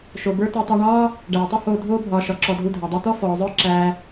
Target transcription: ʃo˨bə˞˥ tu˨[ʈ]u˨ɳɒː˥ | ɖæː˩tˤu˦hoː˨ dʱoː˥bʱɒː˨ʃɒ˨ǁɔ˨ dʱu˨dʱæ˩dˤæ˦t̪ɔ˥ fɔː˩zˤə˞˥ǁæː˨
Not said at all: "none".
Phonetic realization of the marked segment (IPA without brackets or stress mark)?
tˤ